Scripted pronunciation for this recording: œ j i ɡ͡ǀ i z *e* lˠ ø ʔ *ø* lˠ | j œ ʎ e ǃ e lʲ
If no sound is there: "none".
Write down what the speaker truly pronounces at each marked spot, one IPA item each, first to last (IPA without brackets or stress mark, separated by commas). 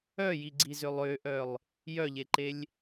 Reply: ø, œ